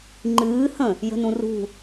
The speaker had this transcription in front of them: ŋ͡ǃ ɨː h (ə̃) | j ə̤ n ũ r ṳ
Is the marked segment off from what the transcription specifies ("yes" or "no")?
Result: no